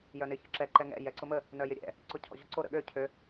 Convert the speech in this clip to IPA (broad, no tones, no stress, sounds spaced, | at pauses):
j œ n ɪ ç ə̰ ǁ ɛ ǃ ɛ ŋ ɛ̰ j ɛ ǀ ʊ m ə | n œ j ɪ ɾʲ ɛ̰ | ǀ ʊ cʰ ɔ̰ ʑ ʊ ǀ o ɾ ə̰ ɠ ø cʰ ø